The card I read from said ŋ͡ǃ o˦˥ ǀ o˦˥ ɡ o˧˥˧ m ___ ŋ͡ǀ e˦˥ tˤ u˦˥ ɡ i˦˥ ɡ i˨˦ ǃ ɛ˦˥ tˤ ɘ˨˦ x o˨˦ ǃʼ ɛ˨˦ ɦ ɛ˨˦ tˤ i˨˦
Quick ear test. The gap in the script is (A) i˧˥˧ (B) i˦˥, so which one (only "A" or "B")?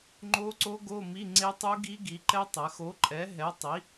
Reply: A